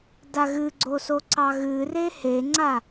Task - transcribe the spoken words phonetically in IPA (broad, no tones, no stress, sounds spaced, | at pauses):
d a ɣ ɨ ɡ͡ǀ o s o ǀ ɑ ɣ ɨ r e h e ŋ͡ǀ a